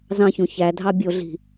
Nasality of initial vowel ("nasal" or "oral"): nasal